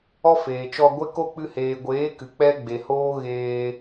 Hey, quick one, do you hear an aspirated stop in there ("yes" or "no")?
no